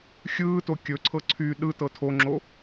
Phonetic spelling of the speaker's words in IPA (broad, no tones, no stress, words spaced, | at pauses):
xʲɯːto kʲɵǀʰɤ ǀʰy ɗɯ tɤtʰoŋ͡ǁo